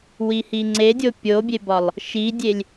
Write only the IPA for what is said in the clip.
wihiŋ͡ǀedʲo pʲobʲebɒlˠ | ʃidʲelʲ

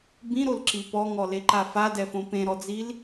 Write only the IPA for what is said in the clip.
bĩɾolǁi pɔŋɔleǃa fadɛfõ pẽɾɔd͡zil

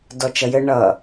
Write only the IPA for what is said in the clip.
dɔt͡ʃʌjɘ ɳʌ

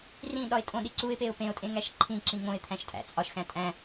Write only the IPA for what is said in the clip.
rĩ ɗɒɪ̯tʼõɗi ǀuɪ̯peʊ̯ pẽʊ̯tʼẽ ŋæʃǃʰĩǁĩ ŋõɪ̯ t̪ʰæ̃ʃtʼæ̰t͡sʼɒʃxæ̃ tʼæ̃

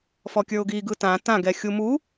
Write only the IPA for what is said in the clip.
fɔkʲə˞ʊ̯ɡiɡɯ tã tãɡɛ xʲumu

